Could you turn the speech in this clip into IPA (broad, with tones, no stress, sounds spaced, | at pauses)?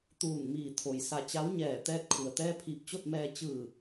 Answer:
t̪ uː˧˩ n m iː˧˩ t̪ʰ o˩ j s a˧˩ t͡ɕ a˧˥ w ɲ ɛː˧˩ t̪ ɛː˥˨ t̚ kʰ u˩ ə̯ t̪ ɛː˧ pʰ iː˧˩ p̚ t͡ɕ o˥˨ t̚ m ɛː˧ t͡ɕ ɯː˧˩